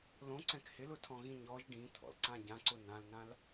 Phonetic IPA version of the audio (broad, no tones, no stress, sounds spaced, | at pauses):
l õ ǀ ɛ̃ k h ɪ l ʊ tʰ ɔ̃ ɣ ĩ ɲ ɔ ʒ ɖ ĩ t̪ʰ ɔ̰ l ǀ ã ɟ ã ǀ ʊ n ã l n ã l